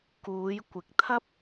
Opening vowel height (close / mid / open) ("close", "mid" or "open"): close